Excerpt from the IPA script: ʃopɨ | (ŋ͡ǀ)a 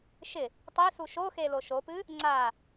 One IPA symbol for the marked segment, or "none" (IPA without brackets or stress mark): ŋ͡ǀ